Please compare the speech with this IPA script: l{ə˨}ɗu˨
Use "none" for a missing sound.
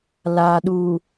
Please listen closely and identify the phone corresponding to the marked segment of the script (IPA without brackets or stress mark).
a˨